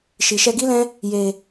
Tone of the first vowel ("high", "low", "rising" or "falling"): low